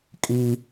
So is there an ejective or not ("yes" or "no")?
yes